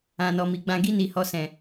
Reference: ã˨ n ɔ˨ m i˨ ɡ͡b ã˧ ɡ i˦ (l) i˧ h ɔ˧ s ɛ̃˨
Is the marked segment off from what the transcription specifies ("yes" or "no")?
yes